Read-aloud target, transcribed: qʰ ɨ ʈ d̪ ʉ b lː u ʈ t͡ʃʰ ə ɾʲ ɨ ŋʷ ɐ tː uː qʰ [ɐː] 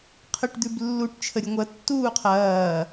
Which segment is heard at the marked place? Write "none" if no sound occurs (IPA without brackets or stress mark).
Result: ɐː